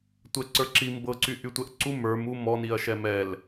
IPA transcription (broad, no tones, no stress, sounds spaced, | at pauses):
tʷ ɛ ǀ ə˞ ǁ i m b ɤ ǀ y ʔ y tʷ ɛ ʔ ǀ u m ə˞ m u m ɔ n i ɐ̯ ʃ ɛ m ɛ l